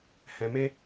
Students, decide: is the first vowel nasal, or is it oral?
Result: nasal